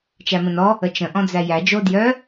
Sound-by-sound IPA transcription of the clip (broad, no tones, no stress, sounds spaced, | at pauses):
t͡ʃ æ m ə̃ n ɔ | ə t͡ʃ ə̃ ʔ ɔ̃ d͡z æ j æ d͡ʒ o d j œ